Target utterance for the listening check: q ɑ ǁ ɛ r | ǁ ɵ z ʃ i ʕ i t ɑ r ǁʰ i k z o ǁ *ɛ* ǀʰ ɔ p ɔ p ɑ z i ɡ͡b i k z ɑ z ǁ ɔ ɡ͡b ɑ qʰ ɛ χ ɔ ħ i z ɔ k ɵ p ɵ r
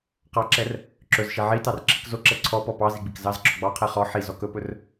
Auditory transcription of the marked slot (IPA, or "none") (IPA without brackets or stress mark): ɛ